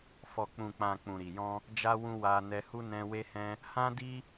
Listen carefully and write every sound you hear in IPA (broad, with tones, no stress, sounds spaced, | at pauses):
f ɔ˨ k͡p ũ˨ k͡p ã˨ k͡p ũ˨ ɾ i˨ j ɔ̃˧ | d͡ʒ a˧ w ũ˧ w a˧ n ɛ˧ h u˦ n ɛ̃˧ w e˦ h ɛ̃˦ | h ã˦ d i˦